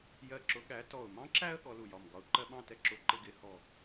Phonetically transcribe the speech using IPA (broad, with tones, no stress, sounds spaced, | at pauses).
j ɜ˧˩ ǁ ʊ˨˦ ɠ æ˨˦ t ɔ˧˩ ʊ̯ m ɑ̃˦ ǁ æ˦ ə̯ ɠ ɔ˨˦ l u˧˩ j ɒ˧˩ m ɡ ɒ˧˩ ʊ̯ ǃ ɜ˦ ɓ ɑ̃˥˨ t ɛ˦ ǁ ʊ˨˦ ǃ ɪ˦ ɡ ɪ˨˦ h ɔ˧˩